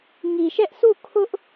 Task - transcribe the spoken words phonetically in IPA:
ŋ i˨ ʃ ɛ˦ ʔ s u˦˨ kʰ ʊ˦ ʔ

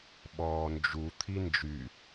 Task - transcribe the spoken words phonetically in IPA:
ɓ ɔː n d͡ʒ u t̪ʰ i n d͡ʒ y

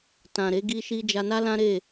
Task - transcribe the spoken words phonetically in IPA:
t ã˨ ɾ e˨˦ ɡ i˧ ʃ i˧ d͡ʒ a˧ n a˦ l ã˦ ɾ e˦˨

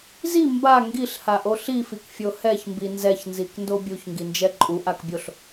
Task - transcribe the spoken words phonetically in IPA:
z i m b a ŋ ɡ i ɬ h a ʔ o ɬ i f i k fʲ o h ɛ ç m b i n z ɛ ç n z i k n d o bʲ u ç ŋ ɡ i n d͡ʒ ɛ ǃʼ u ʔ a k bʲ o ɬ

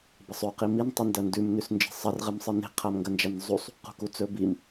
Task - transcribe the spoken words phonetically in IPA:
b ɐ sˤ ʉ q i m i n tˤ ɨ n d ɐ n d ʉ m n ʉ s n d͡ʒ e̤ sˤ ɐ r ʁ ɨ m sˤ ɨ n e̤ qʰ a m ŋ ɡ ɐ n d͡ʒ a n zˤ u sˤ | q ṳ k u t͡s ɵ b i m

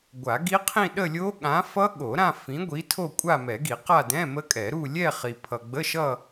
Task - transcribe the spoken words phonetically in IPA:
ɡʷ a˨˩˦ ɡ i˦˥ qʰ ĩ˥˧ ɗ ə˥˧ lʲ o˦˥ ɠ ã˨˥ f ʌ˦˥ ɠ o˨˩˦ ɾ ã˥˧ f ĩ˨˥ ɡʷ i˨˥ tʰ o˥˧ kʷʼ a˥˧ m ɛ˨˩˦ ɡ i˨˩˦ q a˥˧ d ɛ̃˧˥˧ m ə˦˥ kʼ ɛ˨˩˦ ɾ u˥˧ lʲ ɛ˥˧ χ i˨ pʰ ʌ˨ ɡ͡b ə˧˥˧ ʃ ʌ˥˧

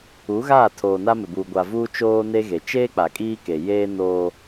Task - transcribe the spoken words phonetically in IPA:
u˨˦ ɣ aː˦˨ tʰ oː˨ n a˦ m ɪ˨ b uː˨ ɡʷ a˨ v uː˦ t͡ʃ oː˦ n e˦ ɣ e˨ t͡ʃ eː˦ k͡p a˨ kʼ iː˦ k e˨ j eː˦ n oː˦

